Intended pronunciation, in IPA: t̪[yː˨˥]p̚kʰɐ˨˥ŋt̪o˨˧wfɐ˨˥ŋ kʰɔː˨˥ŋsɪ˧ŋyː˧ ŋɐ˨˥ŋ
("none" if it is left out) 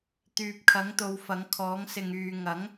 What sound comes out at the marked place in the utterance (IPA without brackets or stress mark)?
yː˨